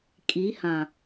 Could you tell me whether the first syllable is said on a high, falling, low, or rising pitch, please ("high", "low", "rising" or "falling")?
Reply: rising